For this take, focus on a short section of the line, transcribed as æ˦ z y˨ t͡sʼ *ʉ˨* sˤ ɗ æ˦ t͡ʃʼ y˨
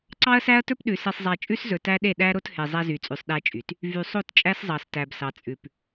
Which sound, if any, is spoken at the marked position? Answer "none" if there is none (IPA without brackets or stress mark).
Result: ʉ˨